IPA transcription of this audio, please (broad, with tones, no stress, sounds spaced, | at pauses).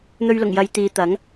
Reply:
n̪ ɵ˧ ɥ l ʊ˨˩ ŋ j ɐ˨˧ j t̪ iː˨˧ t̪ ɐ˨˥ ŋ